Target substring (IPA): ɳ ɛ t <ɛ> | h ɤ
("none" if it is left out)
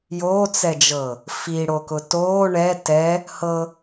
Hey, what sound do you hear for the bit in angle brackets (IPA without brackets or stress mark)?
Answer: ɛ